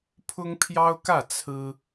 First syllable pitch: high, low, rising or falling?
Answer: high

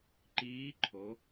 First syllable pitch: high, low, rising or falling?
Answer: rising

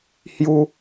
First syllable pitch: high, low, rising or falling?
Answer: high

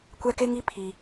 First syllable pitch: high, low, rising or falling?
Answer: high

